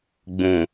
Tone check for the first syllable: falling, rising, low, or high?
low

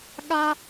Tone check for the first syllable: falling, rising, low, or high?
high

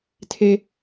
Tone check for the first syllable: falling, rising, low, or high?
high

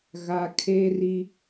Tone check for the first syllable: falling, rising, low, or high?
low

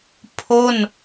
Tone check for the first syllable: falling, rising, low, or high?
falling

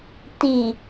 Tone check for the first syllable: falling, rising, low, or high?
low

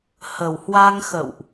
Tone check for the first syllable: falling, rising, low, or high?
low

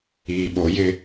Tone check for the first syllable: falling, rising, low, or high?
low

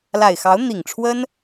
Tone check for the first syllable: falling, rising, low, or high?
low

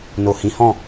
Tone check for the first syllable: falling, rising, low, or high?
low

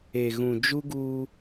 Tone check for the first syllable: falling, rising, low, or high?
low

